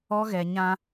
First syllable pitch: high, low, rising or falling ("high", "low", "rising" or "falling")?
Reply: high